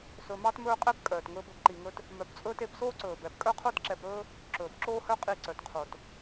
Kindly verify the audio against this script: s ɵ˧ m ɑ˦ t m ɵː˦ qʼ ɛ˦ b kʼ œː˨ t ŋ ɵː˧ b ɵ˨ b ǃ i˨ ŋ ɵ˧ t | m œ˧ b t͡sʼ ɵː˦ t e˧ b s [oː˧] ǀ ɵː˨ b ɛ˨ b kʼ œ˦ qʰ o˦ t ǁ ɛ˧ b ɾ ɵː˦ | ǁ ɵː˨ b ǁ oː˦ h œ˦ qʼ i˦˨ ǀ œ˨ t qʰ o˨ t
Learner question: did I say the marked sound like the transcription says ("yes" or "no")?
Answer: no